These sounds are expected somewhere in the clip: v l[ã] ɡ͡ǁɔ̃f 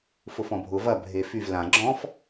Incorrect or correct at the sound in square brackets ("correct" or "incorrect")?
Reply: correct